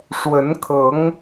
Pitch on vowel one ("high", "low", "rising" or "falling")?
rising